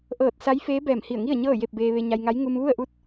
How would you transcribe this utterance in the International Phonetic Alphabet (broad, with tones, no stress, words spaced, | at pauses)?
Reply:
ʔɤː˧˩t̚sa˧˥j feː˧˥ bɛː˧˩mhi˧˩ə̯ŋi˥˨ə̯ ɲɤː˥˨je˥˨p̚beː˧ ʋe˧ɲa˧jŋa˧˥j ŋu˧mʋu˥˨ə̯ʔu˥˨t̚